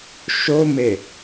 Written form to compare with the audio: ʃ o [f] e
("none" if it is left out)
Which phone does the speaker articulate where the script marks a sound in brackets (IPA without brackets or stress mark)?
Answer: m